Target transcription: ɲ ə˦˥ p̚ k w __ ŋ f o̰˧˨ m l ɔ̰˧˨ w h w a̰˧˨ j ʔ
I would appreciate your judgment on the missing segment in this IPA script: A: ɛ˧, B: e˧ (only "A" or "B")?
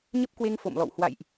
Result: B